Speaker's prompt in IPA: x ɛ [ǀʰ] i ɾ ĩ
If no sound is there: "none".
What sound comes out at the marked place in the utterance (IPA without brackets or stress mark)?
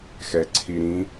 ǀʰ